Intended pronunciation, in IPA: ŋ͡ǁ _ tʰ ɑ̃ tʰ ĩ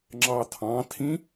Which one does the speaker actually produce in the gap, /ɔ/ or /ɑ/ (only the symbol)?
ɑ